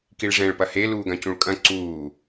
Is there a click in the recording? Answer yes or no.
yes